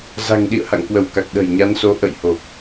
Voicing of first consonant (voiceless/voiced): voiced